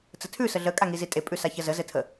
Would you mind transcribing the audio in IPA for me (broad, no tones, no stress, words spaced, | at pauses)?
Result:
t͡sətʰʉ səɮə kʼaŋizitʼe pʼʉsaçəzə zɘtʰə